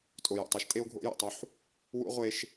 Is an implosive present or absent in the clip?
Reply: absent